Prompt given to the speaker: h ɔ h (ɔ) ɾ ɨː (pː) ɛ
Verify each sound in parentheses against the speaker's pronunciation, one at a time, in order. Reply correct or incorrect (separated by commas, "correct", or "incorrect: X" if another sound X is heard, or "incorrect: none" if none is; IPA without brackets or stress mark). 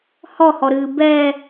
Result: correct, incorrect: b